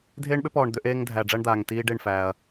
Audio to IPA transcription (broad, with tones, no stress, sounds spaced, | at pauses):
dʱ eː˦ ɳ ɓ ʏ˦ p ɔː˨ ɳ d̪ ʏ˦ ʔ eː˦ ŋ dʱ æ˨ ɖ͡ʐ æ˦ ɳ d̪ aː˨ ŋ t iː˦ ɖ e˦˨ ɳ f æː˨ ɐ̯